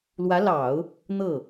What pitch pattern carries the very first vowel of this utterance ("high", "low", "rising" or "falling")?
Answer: rising